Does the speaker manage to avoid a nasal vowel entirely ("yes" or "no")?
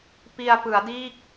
yes